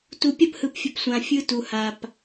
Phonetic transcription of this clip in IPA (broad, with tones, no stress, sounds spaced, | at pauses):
t u˨ pʲ ɐ˦˨ p h ɯ˨ p fʲ ə˨ p sʷ ã˨ fʲ ɯ˦ t u˨ h a˨ p